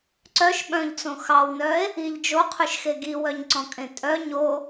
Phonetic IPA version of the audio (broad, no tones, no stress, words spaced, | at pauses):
ǀœʃ ɓœ̃ʎt͡sõ xɑwnœe̯ | iʎ d͡ʒoqʰʉʃxe ɡiwœɲǀɔ̃kʼẽ tʼœ ɲo